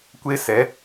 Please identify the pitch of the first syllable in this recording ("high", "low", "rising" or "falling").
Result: high